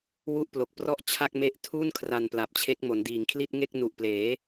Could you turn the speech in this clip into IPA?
w u˥˩ ʔ p l o˨˩ k̚ p r ɔ˥˩ ʔ t͡ɕʰ a˥˩ k̚ m e˦˥ ʔ tʰ u˥˩ n kʰ r a˧ n p l a˨˩ p̚ t͡ɕʰ e˦˥ k̚ m o˩˦ n d iː˨˩ ŋ kʰ l i˥˩ t̚ ŋ e˥˩ k̚ n u˨˩ ʔ p l eː˩˦

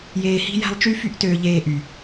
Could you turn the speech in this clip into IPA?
j eː˧ h i̤˦ j æ̤˦ lˠ t͡ʃ y˦ f y˦ ʔ t øː˧ ʎ eː˦ ʔ y˨

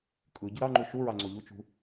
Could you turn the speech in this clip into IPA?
kʼ ɯ ɟ ɯ ɾ ɑ ŋ͡ǃ u ʃ u ɹ ɑ ŋ͡ǀ o ʎ u t͡ʃ ṳ

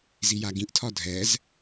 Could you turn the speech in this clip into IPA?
z i j a ɡ ĩ ʔ tʰ ɒ dʱ ɛ z

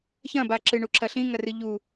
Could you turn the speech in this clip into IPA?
ç ɐ̃ b a ǁ ɨ ɳ u ǁʰ ɐ ɬ ĩ ŋ ɐ r ɨ ʎ u

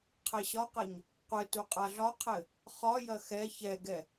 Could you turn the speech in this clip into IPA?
qʰ ɛ ɕ ɒ q ɐ ɲ | qʷ ɘ t u qʼ a ɮ ɒ qʰ ɘ | χ ɒ j ɐ x ɛ ç ɛ ɡ ɛ

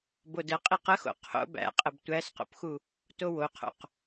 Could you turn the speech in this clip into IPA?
b o d ə qʼ i q ə x o̰ qʰ o̰ b æ̰ qʼ ə b tʷ æ s q o̰ p x u | t o w o qʰ o̰ q

